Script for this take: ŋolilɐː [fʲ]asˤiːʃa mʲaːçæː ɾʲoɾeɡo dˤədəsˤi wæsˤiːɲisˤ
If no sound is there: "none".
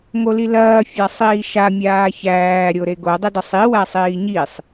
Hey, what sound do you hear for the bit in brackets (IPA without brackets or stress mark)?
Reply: fʲ